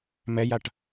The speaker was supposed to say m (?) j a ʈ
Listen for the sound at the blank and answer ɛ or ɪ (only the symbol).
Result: ɛ